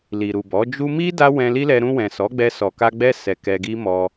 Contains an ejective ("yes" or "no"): no